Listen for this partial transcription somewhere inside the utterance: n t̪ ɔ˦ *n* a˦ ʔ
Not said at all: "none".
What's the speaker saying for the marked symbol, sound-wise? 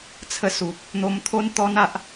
n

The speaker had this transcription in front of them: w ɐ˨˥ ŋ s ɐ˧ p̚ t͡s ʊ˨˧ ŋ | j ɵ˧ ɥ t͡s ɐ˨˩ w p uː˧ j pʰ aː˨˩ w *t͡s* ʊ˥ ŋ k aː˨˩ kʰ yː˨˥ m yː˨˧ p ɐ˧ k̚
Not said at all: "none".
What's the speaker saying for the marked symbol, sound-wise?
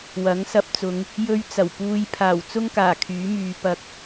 t͡s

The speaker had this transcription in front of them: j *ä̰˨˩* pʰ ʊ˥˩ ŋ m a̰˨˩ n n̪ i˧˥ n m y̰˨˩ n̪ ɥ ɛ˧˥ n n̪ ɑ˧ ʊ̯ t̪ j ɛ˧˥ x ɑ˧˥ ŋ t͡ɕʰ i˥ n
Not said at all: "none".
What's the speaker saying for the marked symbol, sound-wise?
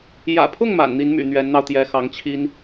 ä̰˨˩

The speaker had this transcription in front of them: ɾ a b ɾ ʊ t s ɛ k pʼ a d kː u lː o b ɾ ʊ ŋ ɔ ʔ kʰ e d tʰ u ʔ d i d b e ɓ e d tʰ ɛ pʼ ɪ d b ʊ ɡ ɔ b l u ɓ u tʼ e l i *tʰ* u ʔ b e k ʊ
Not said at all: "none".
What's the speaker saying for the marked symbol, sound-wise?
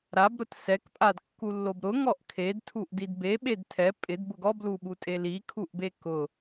kʰ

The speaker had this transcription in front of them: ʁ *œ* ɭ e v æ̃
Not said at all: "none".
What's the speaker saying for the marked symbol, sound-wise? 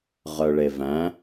œ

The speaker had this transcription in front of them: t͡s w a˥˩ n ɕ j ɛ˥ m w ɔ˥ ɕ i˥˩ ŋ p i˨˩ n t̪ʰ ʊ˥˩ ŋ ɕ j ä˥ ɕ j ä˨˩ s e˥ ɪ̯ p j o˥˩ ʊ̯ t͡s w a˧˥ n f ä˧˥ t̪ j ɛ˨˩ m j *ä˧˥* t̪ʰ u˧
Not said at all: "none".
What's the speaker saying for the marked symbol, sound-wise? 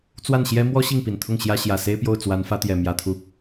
ä˧˥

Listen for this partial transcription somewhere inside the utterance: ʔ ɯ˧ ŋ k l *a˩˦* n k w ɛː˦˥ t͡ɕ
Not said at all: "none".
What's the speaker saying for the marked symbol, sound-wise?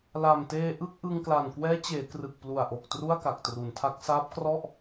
a˨˩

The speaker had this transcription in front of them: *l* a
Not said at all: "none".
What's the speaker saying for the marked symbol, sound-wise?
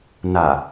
n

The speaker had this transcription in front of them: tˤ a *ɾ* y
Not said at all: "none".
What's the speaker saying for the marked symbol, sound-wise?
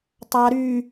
ɾ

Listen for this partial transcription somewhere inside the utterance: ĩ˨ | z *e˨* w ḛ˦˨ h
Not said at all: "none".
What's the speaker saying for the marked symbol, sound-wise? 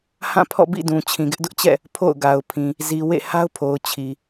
i˨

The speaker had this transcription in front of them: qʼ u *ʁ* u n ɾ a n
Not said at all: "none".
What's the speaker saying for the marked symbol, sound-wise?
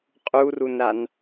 r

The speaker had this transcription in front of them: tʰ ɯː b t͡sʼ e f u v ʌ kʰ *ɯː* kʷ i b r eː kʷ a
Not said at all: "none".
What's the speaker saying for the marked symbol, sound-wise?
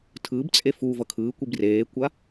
ɯː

